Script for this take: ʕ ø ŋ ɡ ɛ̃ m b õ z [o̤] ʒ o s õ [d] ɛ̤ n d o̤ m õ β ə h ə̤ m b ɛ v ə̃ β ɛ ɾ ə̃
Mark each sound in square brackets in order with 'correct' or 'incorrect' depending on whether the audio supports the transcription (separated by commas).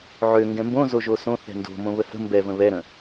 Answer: incorrect, incorrect